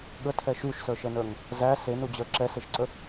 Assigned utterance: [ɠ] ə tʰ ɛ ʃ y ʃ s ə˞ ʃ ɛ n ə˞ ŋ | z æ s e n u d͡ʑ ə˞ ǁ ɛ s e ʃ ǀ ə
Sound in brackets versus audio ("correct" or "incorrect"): correct